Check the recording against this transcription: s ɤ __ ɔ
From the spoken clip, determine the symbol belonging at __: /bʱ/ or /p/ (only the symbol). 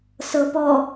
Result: p